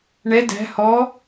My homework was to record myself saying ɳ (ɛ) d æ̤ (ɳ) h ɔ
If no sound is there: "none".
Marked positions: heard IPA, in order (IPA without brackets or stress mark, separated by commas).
ɛ, none